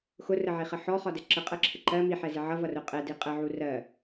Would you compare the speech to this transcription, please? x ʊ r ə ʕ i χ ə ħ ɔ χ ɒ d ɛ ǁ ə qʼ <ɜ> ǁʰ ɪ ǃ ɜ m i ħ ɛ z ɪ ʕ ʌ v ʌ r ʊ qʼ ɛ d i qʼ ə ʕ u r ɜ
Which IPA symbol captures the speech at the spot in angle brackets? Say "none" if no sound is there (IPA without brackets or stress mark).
ɜ